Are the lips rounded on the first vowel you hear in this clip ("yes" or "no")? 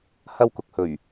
no